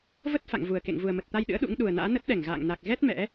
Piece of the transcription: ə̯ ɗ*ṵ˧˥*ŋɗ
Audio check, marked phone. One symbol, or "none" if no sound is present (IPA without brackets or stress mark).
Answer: ṵ˧˥